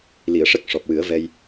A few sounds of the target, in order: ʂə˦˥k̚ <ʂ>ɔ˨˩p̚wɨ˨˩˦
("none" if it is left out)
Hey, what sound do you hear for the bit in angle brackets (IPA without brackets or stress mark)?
ʂ